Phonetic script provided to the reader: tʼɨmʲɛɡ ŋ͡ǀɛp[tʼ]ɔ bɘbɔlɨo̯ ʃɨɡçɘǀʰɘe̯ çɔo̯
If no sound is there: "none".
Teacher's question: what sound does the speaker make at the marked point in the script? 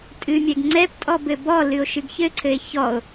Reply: tʼ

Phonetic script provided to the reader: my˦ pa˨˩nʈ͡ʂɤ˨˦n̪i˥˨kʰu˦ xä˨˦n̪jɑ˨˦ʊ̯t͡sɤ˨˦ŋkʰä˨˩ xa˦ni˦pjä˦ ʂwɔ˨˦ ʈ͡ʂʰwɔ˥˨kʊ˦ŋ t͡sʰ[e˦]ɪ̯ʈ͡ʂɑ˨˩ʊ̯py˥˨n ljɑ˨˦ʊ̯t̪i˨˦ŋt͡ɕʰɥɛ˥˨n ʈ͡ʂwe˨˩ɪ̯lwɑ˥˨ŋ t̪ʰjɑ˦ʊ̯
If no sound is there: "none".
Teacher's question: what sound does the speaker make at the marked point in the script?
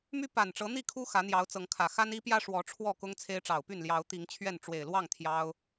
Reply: e˦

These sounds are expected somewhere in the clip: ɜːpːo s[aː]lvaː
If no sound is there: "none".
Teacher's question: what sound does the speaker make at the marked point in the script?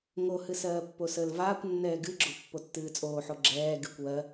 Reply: əː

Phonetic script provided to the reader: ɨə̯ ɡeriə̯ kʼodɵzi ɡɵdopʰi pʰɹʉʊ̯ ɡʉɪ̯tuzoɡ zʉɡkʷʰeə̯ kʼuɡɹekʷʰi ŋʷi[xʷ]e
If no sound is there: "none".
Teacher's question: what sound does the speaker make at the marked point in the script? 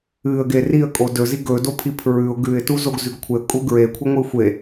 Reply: xʷ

